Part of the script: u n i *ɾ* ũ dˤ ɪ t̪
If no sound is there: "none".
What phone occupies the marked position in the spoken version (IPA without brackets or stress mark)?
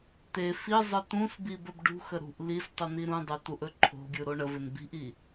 ɾ